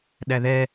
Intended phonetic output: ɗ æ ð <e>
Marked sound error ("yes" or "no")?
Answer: yes